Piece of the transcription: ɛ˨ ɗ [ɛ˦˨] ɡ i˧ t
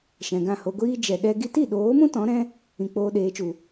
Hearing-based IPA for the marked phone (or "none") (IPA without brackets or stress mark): ɛ˦